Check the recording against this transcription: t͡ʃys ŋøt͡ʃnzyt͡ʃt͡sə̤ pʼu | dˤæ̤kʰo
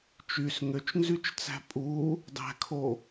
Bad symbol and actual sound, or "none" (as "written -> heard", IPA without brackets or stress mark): ə̤ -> æ̤